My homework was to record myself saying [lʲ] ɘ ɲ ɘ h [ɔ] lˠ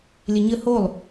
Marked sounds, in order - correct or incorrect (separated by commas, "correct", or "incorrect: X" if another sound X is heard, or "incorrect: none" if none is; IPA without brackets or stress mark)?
correct, incorrect: o